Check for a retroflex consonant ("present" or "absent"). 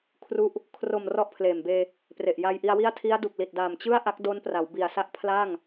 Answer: absent